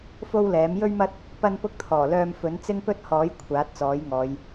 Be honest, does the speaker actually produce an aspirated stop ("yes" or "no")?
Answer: yes